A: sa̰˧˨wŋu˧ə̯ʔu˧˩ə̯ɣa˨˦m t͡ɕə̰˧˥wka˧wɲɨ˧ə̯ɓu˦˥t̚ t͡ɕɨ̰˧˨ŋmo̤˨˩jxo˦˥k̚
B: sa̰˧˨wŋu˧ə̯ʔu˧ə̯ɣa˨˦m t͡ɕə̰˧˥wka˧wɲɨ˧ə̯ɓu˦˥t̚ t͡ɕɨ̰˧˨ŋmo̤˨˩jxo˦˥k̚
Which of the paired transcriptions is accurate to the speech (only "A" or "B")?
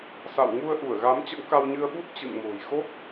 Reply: A